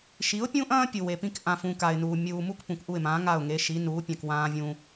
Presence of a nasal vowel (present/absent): present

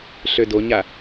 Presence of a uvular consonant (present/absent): absent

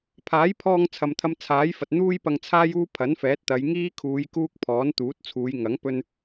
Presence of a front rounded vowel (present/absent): absent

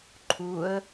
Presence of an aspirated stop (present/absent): present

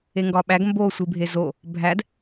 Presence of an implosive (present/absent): present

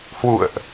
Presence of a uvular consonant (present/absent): absent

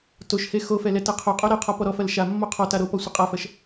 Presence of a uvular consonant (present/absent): present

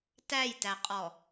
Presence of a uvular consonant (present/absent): present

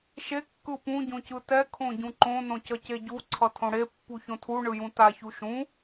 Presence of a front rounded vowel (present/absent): absent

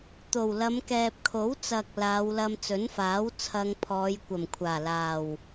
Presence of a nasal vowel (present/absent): absent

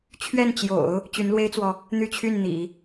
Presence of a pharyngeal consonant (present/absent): absent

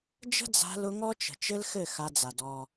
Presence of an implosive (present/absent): absent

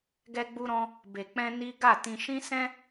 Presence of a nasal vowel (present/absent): present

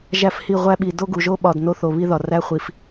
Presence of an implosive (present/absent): present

